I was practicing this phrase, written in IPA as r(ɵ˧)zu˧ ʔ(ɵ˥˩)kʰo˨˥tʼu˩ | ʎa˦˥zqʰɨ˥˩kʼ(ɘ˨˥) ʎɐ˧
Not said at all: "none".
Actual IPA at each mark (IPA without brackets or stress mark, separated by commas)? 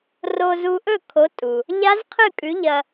o˧, ɵ˥˩, ʉ˨˥